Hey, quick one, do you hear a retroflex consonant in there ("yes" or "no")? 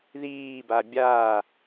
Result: no